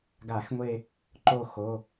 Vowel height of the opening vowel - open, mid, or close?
open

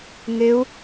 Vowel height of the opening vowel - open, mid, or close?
close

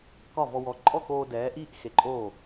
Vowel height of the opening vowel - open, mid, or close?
open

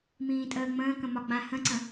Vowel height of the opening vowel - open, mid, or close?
close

